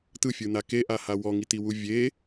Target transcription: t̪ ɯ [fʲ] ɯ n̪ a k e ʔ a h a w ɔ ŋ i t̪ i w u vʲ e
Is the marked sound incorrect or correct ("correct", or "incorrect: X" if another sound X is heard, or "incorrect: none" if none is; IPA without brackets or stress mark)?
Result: correct